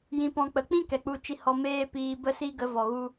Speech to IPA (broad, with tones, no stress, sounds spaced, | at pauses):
j ĩ˧ p ɔ̃˧ k͡p ə˨˦ k͡p ĩ˦ k ɛ˨ k͡p u˧ t͡ʃ i˧ h ɔ˧ m eː˦ p iː˧ b ə˦ s i˦ ɡ ə˨˦ v ɔ˨ ɣ u˧